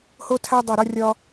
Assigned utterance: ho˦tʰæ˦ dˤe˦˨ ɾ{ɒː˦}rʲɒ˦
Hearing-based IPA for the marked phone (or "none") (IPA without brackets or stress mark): ɒ˦